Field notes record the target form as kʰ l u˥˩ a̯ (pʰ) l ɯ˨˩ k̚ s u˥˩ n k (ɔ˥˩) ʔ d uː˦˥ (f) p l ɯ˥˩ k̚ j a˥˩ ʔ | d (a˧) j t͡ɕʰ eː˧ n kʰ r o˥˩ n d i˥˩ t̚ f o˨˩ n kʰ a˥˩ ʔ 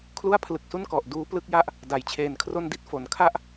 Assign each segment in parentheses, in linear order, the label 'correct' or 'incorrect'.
correct, incorrect: ɔ˨˩, incorrect: none, incorrect: a˩˦

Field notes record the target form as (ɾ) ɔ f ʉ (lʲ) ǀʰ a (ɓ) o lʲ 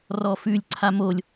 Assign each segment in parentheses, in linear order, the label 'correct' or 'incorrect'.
incorrect: r, correct, incorrect: m

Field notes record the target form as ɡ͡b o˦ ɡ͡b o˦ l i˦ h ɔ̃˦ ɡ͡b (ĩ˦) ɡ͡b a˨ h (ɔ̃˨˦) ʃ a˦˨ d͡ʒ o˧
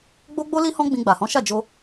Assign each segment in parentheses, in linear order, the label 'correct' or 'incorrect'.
incorrect: ĩ˧, correct

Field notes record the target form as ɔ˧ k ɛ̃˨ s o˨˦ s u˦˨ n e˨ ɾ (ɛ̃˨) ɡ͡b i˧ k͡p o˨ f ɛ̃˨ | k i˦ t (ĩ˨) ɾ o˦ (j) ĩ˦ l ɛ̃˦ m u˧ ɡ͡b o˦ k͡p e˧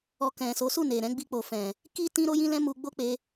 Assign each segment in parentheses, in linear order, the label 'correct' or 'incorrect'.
incorrect: ɛ̃˧, incorrect: ĩ˦, correct

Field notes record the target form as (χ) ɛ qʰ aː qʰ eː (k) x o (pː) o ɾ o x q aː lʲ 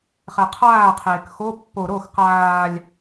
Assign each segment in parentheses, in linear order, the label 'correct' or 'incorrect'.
correct, correct, correct

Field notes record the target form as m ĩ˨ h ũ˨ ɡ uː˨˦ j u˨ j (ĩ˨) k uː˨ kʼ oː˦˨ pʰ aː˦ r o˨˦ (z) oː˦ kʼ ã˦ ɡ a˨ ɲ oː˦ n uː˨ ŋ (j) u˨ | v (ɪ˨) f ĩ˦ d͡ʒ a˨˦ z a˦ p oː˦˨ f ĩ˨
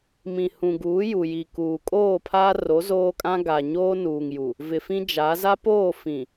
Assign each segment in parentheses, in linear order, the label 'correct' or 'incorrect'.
incorrect: i˨, correct, correct, correct

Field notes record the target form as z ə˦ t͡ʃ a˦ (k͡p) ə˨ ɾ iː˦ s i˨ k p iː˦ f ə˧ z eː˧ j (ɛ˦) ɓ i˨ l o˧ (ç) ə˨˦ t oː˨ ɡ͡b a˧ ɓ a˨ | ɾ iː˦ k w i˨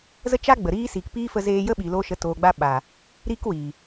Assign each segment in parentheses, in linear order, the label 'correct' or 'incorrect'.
incorrect: ɡ͡b, incorrect: ə˦, incorrect: ʃ

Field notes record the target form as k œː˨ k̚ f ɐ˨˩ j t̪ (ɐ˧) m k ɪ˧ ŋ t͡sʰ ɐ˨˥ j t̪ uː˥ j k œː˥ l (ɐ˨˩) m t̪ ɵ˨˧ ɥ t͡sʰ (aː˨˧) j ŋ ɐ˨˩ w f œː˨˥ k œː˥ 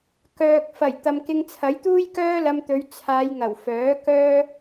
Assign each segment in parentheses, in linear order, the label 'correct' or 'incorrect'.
incorrect: ɐ˨, incorrect: ɐ˧, correct

